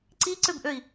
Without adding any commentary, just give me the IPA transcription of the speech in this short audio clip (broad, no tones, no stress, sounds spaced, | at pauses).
ǀ i ǀ ø b ʔ ø i̯